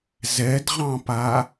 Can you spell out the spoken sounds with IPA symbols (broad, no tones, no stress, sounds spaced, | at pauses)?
z ɛ d ʁ ɑ̃ p a